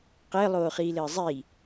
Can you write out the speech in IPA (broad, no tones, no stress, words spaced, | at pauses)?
qɘːlˠoːχiːlɘː zˤi